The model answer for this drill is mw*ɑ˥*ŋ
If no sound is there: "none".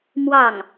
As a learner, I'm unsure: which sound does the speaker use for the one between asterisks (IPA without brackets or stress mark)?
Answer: ɑ˥˩